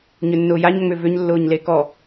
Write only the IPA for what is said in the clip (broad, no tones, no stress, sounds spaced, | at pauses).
ɲ ʏ nː ʊː j a ɲ ŋ͡m ʏ v ʏ ɲ lː ʊː ɲ l e k ɔ